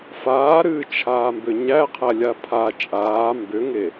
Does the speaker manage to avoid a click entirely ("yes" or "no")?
yes